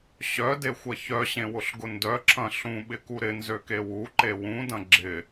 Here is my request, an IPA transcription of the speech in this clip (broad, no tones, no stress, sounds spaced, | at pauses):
ɕ œ d e xʷ ɐ ç œ ɕ ẽ w ʊ ɬ ɡ ʊ n d œ ǁʰ ɐ̃ ɬ ũ ɓ ɪ k u ɾ ɪ n z ø k e w u ǃ e w ũ d ɐ̃ ɡ͡ǁ ɪ